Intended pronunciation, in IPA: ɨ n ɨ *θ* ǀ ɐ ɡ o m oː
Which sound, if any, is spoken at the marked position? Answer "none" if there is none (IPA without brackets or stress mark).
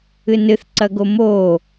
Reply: θ